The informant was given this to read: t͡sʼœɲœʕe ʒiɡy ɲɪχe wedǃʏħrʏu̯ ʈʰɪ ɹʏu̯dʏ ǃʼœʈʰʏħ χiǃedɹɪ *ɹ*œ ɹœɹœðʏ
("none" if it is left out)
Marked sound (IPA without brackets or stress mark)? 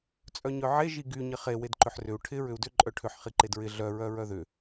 ɮ